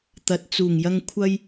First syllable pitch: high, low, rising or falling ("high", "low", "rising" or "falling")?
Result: low